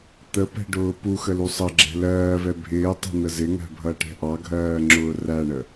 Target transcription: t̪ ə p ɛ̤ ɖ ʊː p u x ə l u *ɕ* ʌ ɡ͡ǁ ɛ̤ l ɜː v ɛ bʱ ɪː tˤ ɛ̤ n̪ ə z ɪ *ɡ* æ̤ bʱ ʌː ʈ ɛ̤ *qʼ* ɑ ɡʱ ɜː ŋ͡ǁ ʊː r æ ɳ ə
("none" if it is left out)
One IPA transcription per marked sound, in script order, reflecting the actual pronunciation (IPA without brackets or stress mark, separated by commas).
sˤ, ŋ, ʔ